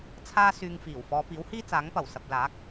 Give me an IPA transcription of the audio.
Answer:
t͡sʰ aː˥ s yː˧ ŋ f iː˨˩ w f ɔː˨˧ p iː˨˥ w h iː˥ t͡s aː˨˥ ŋ p ɐ˨˩ w s ɐ˨ p̚ l aː˨˥ k̚

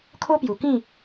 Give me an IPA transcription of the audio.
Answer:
kʰ o˦ p j u˨˩ k ĩ˥˧

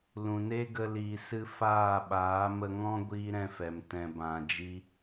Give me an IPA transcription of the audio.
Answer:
l ũ˨ n e˦ ɡ ə˧ l iː˨ s ɨ˧ f aː˦˨ ɓ aː˨˦ m ə˧ ŋ ɔ̃˦ ɡʷ iː˦ ɾ ɛ̃˧ f ɛ˨ m t ɛ̃˨ b ã˨ d͡ʒ i˧

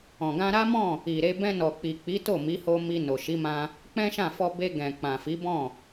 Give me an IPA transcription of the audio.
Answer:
ɔ̃˨ ɡ ã˧ ɾ a˦ m ɔ̃˦˨ | i˨ ɾ e˧ b ɛ̃˧ n ɔ˨ k͡p i˨ k͡p i˨˦ t o˦˨ m i˨˦ h o˧ m i˧ n o˨ ʃ i˨˦ m ã˧ | k͡p ɛ̃˦ ʃ ã˦˨ f ɔ˧ b e˧ ɡ ɛ̃˨ k͡p ã˨ f i˨˦ b ɔ̃˦˨

